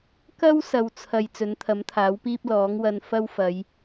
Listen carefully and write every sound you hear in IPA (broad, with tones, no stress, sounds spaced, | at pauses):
k ɐ˥ w s ɐ˨ w t͡sʰ ɐ˨ j t͡s ɵ˨˥ n t̪ʰ ɐ˨˥ m t̪ʰ aː˨˥ w p iː˥ p̚ l ɔː˨˥ ŋ w ɐ˧ n f ɐ˥ w f ɐ˨˧ j